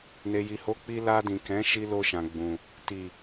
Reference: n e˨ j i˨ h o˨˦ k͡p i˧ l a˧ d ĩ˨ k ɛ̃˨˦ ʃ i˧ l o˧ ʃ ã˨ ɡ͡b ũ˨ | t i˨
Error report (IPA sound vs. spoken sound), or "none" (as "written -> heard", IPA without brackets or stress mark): none